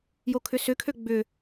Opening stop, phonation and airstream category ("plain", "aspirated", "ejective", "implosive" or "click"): aspirated